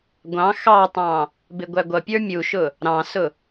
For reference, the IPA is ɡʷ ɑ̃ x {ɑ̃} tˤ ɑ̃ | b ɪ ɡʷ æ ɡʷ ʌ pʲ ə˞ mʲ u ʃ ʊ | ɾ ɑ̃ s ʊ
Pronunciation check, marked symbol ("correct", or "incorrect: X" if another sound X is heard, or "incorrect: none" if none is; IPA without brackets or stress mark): incorrect: ɑ